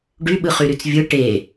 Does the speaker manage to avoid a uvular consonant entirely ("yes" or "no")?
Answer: no